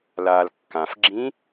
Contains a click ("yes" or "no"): yes